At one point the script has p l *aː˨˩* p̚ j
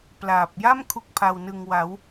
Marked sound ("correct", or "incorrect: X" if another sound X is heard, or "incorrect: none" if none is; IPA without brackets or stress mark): correct